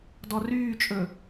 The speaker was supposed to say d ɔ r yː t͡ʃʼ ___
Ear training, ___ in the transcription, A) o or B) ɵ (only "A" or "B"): B